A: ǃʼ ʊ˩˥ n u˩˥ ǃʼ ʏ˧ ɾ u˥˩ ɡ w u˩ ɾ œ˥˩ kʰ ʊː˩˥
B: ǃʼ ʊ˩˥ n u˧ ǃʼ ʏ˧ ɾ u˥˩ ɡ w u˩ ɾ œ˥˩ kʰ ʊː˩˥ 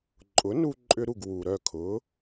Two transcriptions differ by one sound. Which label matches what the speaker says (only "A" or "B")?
B